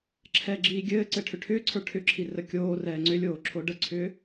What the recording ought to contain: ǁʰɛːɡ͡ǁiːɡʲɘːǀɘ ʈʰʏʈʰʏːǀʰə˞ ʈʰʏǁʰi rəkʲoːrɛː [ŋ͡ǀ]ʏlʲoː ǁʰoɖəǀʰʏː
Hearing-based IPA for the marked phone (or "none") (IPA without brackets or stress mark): ŋ͡ǀ